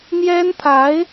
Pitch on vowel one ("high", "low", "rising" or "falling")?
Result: high